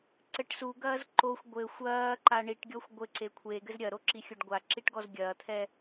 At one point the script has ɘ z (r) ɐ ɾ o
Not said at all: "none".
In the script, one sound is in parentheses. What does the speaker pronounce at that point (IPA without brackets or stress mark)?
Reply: ɾʲ